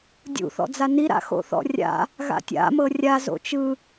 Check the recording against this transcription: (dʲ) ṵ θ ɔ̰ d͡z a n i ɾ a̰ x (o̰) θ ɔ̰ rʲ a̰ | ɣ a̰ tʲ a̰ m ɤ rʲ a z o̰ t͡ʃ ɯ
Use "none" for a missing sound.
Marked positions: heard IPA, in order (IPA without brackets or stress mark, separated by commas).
dʲ, o̰